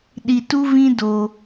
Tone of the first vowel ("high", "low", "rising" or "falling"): low